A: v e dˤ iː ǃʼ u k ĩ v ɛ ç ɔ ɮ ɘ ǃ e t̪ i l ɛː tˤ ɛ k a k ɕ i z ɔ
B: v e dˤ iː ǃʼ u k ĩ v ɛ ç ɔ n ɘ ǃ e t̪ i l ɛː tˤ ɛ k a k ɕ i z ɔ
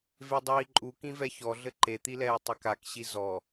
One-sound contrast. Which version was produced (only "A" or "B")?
A